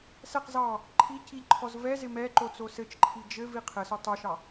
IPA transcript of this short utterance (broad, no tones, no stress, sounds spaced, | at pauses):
s ɛ q z ɑ | ǃʰ i c i ʎ ǃʰ ɔ z v ɛ z ɪ m ɛ ǃ o t͡s o s ɘ t͡ʃ ǃʰ i d͡ʒ ɘ v i qʰ ɘ s o tˤ o ʃ ɑ